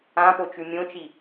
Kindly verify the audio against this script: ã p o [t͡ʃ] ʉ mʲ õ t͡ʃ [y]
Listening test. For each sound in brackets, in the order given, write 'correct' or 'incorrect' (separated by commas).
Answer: correct, incorrect